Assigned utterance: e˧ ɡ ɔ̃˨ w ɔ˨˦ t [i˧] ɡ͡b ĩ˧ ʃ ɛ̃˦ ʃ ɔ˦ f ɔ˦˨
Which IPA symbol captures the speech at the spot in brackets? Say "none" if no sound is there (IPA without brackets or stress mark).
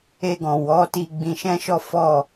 i˧